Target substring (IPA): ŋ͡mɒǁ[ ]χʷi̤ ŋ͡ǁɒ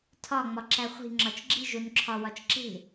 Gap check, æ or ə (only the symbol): æ